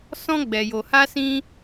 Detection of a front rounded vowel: absent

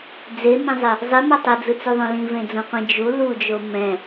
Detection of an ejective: absent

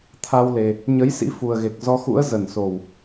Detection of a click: absent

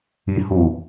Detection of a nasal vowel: absent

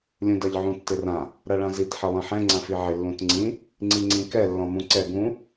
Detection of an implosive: absent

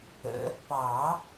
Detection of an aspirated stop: absent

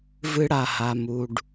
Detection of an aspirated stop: absent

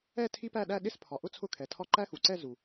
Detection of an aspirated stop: present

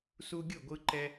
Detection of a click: present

